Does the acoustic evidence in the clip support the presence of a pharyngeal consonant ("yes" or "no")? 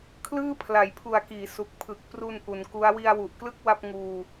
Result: no